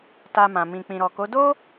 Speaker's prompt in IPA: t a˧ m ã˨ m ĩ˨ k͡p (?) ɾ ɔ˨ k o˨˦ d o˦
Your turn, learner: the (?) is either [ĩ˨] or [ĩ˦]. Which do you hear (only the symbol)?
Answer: ĩ˨